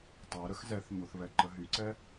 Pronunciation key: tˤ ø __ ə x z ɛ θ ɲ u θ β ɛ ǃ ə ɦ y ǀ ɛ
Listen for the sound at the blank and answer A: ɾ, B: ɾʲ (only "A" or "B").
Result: A